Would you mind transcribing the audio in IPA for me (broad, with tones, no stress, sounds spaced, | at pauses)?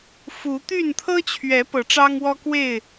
f u˨˦ t̪ y˥˨ n t̪ʰ ɤ˦ t͡ɕʰ ɥ ɛ˨˦ p ɤ˨˦ ʈ͡ʂ ɑ˦ ŋ w ɔ˦ k w e˥˨ ɪ̯